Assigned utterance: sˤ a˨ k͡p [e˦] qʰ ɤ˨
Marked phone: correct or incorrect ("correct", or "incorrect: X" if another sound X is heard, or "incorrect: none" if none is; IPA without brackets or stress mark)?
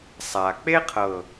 correct